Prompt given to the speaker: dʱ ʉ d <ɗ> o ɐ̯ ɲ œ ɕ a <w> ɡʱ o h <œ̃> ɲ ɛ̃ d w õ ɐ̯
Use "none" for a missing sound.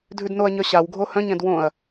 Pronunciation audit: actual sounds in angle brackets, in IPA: n, w, œ̃

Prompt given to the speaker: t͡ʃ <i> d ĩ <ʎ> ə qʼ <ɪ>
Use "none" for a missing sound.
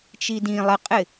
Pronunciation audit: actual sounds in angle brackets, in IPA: i, lˠ, ɪ

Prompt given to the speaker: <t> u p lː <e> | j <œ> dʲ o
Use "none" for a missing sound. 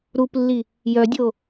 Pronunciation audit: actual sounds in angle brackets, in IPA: ɾ, i, œ

